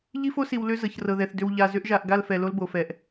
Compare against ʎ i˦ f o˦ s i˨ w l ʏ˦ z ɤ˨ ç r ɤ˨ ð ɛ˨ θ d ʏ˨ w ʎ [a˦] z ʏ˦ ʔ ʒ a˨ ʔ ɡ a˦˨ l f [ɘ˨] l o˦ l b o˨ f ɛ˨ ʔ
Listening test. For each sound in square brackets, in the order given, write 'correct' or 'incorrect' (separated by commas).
incorrect, incorrect